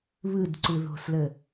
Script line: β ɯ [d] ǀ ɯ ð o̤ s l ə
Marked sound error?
no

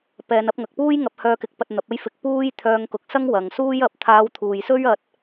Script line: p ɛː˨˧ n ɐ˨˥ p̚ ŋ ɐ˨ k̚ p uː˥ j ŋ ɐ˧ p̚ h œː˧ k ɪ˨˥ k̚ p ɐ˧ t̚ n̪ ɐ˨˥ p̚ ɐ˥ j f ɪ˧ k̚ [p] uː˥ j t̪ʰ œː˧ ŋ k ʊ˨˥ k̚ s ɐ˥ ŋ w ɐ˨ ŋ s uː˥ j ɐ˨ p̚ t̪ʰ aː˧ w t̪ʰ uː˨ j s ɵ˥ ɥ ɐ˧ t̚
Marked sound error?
no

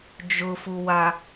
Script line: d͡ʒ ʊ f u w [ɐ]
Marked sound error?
yes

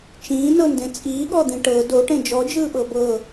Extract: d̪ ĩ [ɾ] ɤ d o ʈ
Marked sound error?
yes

